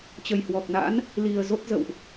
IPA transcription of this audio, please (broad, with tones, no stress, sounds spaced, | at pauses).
t͡ɕ ə˨˩ j h w ɔ˨˩ k̚ n a̰˧˥ n | l i˨˩ ə̯ z o˦˥ t̚ z ə̰˧˨ w ʔ